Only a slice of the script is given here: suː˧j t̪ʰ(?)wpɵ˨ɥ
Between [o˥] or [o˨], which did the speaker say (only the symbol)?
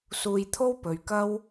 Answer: o˥